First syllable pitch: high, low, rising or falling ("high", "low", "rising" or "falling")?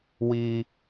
high